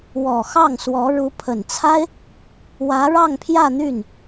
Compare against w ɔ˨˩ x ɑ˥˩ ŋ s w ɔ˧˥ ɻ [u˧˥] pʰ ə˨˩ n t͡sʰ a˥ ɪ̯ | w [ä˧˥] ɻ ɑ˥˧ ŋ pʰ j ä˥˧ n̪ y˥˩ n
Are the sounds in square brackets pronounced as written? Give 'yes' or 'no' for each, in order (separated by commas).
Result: yes, yes